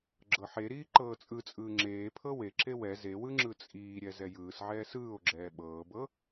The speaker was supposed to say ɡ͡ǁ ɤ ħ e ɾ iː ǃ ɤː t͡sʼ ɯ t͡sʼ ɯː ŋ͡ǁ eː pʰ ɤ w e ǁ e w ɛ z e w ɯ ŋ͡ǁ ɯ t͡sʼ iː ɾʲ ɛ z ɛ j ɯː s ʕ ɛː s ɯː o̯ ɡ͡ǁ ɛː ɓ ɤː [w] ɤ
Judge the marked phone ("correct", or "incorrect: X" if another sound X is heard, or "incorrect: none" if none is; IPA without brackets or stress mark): incorrect: b